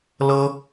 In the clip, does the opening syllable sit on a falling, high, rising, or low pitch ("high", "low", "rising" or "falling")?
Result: high